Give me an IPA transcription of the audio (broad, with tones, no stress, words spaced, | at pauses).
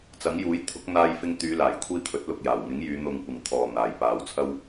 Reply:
t͡sɐ˨˥ŋjuː˨˥j t̪ʰʊ˨˥k̚ n̪aː˧jfɪ˧ŋ t̪yː˨˧laː˨˩jkʷʰiː˧ t̪ʰɵ˨˥t̚lʊ˧k̚jaː˨˩w ŋɪ˨˥ŋjyː˨˧ n̪ʊ˧ŋkʷɪ˨ŋt̪ʰɔː˨ n̪aː˨jpaː˧wt͡sʰɐ˥w